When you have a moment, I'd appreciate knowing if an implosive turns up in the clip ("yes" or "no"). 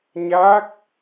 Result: no